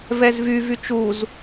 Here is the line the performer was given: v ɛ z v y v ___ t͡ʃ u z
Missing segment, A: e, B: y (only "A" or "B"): B